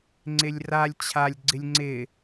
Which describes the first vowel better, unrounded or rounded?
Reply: unrounded